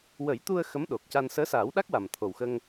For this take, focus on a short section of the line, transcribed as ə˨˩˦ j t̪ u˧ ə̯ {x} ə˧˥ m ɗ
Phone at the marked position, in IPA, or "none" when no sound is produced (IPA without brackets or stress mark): x